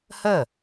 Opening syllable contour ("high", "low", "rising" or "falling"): falling